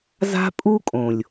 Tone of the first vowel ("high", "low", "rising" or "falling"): high